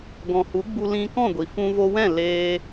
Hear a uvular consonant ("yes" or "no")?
no